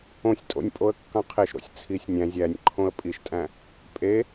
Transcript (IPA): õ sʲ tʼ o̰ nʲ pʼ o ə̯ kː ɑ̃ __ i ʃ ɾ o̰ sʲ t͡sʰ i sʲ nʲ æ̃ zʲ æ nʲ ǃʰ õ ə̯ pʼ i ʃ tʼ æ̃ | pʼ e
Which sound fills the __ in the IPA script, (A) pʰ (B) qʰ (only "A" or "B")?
B